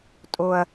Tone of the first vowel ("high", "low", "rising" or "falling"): low